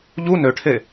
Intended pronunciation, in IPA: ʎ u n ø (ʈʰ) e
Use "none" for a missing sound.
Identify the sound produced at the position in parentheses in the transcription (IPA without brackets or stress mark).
ʈʰ